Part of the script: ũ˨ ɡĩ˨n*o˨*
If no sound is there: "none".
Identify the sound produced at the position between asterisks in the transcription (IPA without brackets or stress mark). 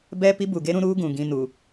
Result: u˨